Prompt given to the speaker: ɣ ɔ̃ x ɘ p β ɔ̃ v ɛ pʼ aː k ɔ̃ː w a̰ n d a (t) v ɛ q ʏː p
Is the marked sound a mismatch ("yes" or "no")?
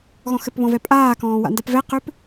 yes